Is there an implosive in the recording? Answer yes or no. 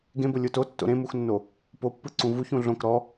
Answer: no